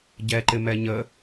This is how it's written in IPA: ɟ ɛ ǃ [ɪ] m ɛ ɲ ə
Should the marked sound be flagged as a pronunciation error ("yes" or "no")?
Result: no